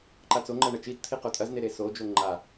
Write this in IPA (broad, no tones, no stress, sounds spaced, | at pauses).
ǃ a t͡s o ŋ͡ǃ ɐ ɳ ɐ t͡ʃ i t t̪ʰ i q o tʼ ɐ z n e ɾ e s o d͡ʒ o ŋ͡ǃ a